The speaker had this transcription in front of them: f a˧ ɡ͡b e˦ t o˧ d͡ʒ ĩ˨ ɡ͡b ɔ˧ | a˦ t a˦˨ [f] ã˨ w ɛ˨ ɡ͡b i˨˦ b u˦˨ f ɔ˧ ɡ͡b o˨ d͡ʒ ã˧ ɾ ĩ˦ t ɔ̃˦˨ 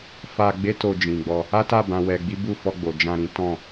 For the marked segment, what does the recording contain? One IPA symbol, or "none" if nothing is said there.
b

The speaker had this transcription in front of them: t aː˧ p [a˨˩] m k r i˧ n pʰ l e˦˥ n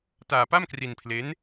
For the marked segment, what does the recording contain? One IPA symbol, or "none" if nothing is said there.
a˥˩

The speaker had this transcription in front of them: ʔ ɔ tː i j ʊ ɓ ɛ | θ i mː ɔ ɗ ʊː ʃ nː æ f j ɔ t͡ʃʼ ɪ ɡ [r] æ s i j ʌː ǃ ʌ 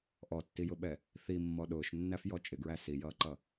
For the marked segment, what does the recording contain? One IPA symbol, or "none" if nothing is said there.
ɹ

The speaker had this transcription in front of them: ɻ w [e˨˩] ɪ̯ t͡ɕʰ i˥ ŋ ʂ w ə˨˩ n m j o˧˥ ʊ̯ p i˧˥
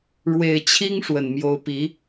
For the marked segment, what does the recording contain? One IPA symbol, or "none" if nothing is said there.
e˨˩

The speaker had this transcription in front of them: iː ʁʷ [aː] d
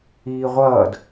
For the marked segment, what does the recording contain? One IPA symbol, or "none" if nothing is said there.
ʌː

